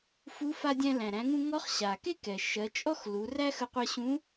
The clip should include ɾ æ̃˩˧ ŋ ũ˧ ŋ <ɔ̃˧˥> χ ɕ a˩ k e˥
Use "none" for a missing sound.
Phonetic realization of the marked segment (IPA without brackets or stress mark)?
ɔ˧˥